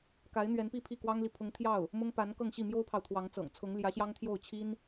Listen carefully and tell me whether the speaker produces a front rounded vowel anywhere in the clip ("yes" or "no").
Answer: no